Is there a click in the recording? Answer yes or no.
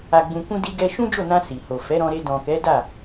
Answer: no